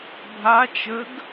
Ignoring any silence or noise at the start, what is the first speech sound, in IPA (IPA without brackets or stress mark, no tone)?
bʱ